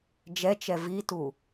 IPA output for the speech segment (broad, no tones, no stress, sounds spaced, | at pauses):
d͡ʒ ɛ t͡ʃ ɛ v i t u